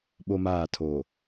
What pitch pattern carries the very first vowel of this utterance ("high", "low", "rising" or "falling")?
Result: high